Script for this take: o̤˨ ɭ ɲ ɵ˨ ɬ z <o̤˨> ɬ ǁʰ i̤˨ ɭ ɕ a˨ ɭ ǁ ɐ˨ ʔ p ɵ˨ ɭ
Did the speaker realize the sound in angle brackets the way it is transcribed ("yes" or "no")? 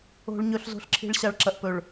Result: yes